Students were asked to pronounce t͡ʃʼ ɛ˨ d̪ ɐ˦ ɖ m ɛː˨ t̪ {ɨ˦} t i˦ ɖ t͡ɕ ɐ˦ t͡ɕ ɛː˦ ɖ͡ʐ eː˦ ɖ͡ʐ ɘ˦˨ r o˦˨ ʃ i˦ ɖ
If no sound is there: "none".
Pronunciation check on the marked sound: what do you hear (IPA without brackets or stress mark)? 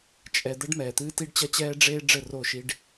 ɨː˦